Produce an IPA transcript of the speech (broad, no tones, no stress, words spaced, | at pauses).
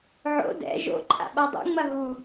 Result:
ʕo̰ dɛ̰ ʒo̰ǃʼa̰ ɓadˤṵŋ͡mɐ ɦu